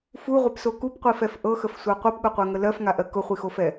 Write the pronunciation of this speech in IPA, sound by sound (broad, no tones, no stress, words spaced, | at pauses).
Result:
fuʁʷɛpso kupqʷifɛf ʔɤxəfsʷa qʷɛpɠʊqʷɜŋə lɜfŋaʔɜ kʊχʷixofɛ